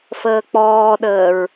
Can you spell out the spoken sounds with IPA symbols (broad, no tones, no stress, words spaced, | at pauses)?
fəːk͡pɔːɗəːɹ